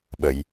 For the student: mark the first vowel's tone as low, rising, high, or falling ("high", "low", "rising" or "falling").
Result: low